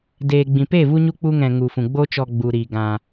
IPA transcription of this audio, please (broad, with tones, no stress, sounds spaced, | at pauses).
d eː˨ ɡ͡b ĩ˨ p e˦˨ v u˦ ɲ u˦ k͡p u˦ ŋ ɛ̃˧ ŋ u˨ f ũ˨ ɡ͡b o˦ t͡ʃ ɔ˧ ɡ͡b u˨ ɾ i˨ ɡ ã˧